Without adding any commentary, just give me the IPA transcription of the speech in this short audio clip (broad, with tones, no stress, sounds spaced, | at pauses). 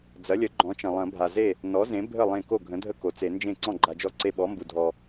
d͡z ɐ˩˥ lʲ ə˩˥ ɡ͡ǃ ɔ̃˩˥ t͡ʃ ɐ̃˩ lˠ ɐ̃˨˩˦ bʱ a˩ z e˥˩ | n ɔ˩˥ z ẽ˩˥ bʱ ə˥˩ lˠ ẽ˧˩ k o˥˩ ɡʱ ə̃˩˥ dʱ ə˥˩ k o˩ t͡s e˨˩˦ n d͡ʒ ẽ˥˩ ǀ ɔ̃˥˩ ɡ͡ǃ a˩ d͡ʒ ɔ˧˩ ǀ e˧˩ ɓ ɔ˩˥ m b u˩ dʱ ɔ˩